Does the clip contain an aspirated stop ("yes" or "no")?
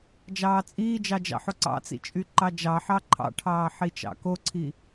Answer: yes